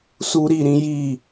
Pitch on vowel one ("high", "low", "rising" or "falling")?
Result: high